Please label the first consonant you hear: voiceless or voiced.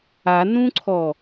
voiced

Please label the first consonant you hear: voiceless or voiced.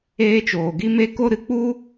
voiceless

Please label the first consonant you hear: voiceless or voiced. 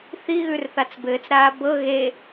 voiceless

